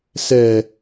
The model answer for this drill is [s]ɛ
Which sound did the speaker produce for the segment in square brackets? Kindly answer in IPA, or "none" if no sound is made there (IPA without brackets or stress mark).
s